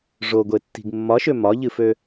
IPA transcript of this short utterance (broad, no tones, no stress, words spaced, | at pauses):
ʐoɡʷetːi̤ɡ mːɒʃø mɒʎɨfø